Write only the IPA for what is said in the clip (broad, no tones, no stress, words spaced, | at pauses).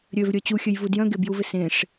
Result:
ɾʲøvɾʲœ t͡ɕuxʲøjvu djœ̃ɡebjuvɪ sẽʂ